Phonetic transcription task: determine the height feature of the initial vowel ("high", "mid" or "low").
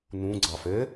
high